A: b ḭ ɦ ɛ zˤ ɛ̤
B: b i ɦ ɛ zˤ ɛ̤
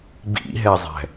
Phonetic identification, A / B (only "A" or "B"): A